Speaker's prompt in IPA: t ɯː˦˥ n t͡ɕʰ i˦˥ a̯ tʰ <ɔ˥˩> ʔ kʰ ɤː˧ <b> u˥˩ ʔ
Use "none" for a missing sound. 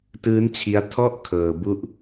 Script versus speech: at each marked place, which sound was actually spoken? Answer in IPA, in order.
ɔ˥˩, b

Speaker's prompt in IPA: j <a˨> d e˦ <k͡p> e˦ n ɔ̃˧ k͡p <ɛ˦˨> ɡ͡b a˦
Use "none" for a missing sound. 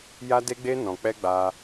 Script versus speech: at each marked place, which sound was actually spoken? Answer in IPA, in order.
a˦, ɡ͡b, ɛ˦

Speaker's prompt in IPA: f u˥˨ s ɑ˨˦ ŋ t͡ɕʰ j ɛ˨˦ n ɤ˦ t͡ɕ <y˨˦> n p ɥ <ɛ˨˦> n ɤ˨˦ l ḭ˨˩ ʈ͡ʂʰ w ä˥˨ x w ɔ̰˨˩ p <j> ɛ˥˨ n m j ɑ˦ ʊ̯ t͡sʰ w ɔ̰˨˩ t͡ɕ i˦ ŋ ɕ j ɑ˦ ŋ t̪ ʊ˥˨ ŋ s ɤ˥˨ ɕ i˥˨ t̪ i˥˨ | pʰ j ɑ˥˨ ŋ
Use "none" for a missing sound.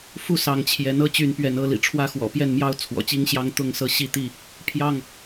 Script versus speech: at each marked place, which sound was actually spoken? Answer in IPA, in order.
y˨˦, ɛ˨˦, j

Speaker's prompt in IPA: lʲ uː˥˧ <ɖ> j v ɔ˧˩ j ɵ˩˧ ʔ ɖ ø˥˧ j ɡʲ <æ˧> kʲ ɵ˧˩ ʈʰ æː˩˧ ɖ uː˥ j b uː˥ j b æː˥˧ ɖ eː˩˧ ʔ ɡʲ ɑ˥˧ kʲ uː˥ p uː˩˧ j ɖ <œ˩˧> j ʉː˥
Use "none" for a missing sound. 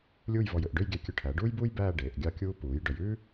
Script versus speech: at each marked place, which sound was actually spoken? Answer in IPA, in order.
none, æ˧, œ˩˧

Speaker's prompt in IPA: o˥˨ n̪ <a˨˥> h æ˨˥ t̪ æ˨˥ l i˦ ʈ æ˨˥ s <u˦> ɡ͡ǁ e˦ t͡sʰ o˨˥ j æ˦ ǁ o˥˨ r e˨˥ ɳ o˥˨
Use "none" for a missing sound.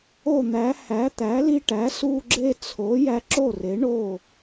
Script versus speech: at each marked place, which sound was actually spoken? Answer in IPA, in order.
æ˨˥, u˦

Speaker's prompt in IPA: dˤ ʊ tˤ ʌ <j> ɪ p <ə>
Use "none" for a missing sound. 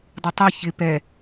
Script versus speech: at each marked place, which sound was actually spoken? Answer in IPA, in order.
ç, ɛ

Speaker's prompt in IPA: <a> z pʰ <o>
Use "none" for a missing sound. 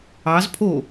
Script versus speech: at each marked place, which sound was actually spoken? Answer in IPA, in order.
ɑ, o

